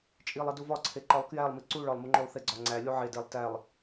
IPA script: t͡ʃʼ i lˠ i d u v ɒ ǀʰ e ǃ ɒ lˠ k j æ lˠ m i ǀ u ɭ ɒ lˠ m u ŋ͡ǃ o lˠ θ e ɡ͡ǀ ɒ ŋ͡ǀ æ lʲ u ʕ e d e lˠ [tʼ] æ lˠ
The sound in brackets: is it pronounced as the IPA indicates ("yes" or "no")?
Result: no